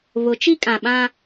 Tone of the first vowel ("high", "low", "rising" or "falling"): rising